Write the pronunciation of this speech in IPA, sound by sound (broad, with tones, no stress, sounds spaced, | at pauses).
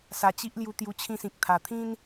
s a˧ t͡ɕ i˦ ʔ l j u˧ t̪ j u˧ t͡ɕʰ ĩ˧ s ĩ˨ k̚ t̪ʰ a˨˩ t̪ʰ ĩ˦ n